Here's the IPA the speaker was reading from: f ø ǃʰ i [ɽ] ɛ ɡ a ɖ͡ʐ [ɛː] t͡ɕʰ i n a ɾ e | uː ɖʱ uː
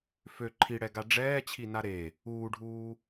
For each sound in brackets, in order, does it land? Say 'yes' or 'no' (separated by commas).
yes, yes